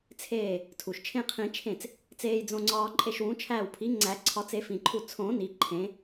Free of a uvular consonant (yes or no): no